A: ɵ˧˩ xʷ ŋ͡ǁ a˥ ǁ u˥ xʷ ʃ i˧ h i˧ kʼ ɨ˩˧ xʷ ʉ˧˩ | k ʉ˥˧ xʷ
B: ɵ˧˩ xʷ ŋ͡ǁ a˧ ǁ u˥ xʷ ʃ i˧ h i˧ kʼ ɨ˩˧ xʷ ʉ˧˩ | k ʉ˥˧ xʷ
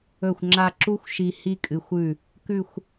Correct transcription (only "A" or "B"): B